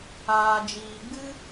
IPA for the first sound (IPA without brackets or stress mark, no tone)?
aː